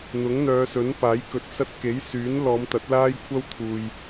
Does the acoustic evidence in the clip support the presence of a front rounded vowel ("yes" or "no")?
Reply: yes